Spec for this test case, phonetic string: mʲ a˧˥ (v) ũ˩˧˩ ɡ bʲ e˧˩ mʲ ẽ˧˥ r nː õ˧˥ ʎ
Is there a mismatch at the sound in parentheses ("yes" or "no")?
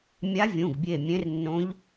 yes